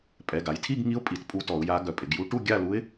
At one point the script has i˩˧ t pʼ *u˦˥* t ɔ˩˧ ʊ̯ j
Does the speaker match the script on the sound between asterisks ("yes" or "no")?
yes